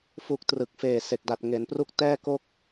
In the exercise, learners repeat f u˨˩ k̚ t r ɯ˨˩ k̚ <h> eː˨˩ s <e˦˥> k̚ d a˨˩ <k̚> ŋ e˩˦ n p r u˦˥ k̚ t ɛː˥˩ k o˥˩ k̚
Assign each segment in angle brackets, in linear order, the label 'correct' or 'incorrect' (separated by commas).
incorrect, incorrect, incorrect